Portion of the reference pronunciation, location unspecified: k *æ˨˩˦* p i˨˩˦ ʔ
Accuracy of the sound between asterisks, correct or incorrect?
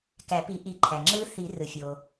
correct